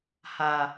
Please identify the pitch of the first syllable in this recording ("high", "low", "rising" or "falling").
low